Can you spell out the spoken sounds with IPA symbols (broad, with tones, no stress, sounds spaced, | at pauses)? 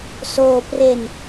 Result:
s oː˧ p r e˧ n